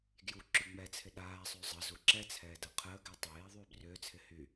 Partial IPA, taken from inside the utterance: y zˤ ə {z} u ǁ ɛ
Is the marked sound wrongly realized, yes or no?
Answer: no